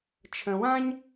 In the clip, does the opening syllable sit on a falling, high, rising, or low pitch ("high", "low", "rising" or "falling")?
low